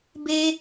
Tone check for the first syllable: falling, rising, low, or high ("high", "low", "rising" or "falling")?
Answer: high